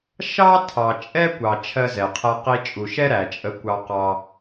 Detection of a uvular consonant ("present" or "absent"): present